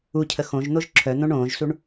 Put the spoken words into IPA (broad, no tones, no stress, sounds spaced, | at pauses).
u cʰ ə x õ ʒ n̪ o ʒ ǁʰ œ n̪ õ ɳ õː ʒ s u ɳ